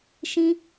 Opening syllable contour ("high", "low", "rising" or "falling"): high